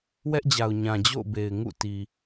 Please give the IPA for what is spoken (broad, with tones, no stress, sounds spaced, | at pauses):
w ɛ˦ ʔ d͡ʑ a˨ ʊ̯ ɲ ã˨ d͡ʑ o̰˦˨ ʊ̯ b e˨ ɪ̯ ŋ ṵ˦˨ t i˨